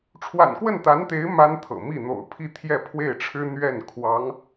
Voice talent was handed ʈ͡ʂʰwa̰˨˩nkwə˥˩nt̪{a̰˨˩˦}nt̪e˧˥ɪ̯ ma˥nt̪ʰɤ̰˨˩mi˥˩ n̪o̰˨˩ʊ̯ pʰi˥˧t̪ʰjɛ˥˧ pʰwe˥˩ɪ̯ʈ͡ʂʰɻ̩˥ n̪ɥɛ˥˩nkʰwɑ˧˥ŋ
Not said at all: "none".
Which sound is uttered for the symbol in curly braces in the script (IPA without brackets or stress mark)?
a˧˥